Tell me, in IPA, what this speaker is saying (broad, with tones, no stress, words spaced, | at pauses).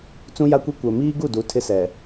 t͡sũ˦ja˦kʷi˦ kʷɛ˨miː˦ɡu˦˨du˨˦ tʰɪ˦sɛ˨